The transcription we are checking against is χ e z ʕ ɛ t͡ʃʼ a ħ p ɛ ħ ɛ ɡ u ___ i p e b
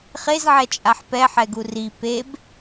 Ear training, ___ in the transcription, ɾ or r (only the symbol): r